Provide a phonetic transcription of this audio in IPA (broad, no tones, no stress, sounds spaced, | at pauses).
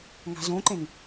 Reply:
ŋ a̤ z õ ǃ ẽ ŋ